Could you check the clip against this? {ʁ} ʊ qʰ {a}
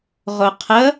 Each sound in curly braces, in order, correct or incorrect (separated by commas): correct, incorrect